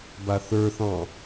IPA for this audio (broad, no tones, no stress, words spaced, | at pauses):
baθə˞θɑ̃